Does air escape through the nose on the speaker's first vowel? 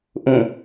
yes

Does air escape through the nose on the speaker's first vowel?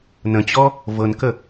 yes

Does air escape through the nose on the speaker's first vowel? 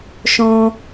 yes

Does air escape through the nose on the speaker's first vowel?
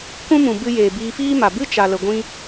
yes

